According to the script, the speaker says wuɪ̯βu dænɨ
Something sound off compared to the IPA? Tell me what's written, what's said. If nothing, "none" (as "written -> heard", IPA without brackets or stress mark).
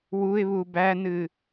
d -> b